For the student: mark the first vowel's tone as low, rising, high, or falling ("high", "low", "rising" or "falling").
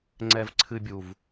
low